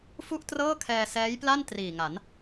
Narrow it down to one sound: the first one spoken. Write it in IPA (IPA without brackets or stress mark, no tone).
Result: f